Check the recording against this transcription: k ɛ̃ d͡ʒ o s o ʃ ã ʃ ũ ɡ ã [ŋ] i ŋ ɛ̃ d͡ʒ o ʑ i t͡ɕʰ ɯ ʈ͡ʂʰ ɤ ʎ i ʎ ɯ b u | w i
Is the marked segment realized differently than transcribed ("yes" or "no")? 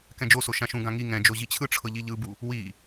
no